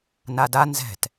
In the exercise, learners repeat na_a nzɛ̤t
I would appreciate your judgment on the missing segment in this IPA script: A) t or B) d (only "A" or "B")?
B